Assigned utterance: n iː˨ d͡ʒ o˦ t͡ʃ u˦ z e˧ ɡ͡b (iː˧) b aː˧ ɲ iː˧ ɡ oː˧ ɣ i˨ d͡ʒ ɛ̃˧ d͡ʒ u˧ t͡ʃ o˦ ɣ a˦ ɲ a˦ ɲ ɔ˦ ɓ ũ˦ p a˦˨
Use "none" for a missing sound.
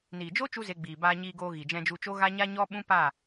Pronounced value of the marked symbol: iː˨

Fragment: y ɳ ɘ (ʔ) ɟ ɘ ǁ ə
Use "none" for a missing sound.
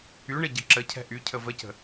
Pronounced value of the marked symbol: none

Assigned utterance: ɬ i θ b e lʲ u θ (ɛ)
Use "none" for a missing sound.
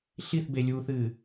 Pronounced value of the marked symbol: ɨ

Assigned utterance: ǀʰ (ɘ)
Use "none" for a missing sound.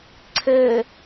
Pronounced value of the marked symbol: ɘ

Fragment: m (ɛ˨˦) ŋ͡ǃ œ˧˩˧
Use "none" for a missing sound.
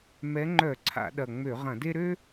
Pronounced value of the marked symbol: ɛ˨˦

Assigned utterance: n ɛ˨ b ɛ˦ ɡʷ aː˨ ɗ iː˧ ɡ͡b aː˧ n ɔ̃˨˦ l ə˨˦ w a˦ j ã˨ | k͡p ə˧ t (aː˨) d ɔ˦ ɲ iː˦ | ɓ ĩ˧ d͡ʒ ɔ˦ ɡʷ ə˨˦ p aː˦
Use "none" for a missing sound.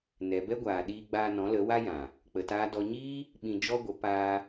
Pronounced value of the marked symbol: aː˦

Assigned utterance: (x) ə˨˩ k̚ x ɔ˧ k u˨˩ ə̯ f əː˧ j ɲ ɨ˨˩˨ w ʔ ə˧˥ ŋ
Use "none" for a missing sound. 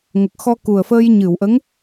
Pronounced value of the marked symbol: ŋ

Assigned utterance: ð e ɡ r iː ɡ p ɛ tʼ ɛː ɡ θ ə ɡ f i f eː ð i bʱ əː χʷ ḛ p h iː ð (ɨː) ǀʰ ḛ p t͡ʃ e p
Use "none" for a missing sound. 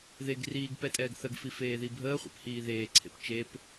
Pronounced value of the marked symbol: eː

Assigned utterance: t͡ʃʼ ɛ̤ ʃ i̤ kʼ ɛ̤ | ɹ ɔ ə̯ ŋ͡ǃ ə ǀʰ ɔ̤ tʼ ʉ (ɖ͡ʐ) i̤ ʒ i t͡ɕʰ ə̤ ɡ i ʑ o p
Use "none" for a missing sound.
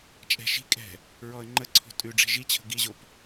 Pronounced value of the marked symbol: ɖ͡ʐ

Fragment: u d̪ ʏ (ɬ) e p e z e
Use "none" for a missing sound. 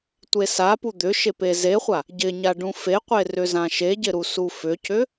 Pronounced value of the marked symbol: ʃ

